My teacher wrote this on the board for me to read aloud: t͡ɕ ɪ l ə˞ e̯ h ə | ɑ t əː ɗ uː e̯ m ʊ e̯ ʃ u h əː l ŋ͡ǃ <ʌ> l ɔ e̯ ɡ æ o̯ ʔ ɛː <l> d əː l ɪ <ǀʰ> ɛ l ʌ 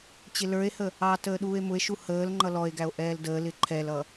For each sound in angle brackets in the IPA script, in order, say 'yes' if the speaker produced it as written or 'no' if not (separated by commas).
yes, yes, no